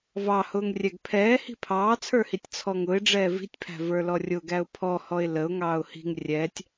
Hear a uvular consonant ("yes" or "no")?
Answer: no